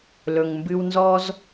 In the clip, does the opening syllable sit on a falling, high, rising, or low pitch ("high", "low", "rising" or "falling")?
low